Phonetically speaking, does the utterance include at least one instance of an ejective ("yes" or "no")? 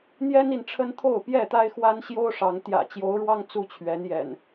no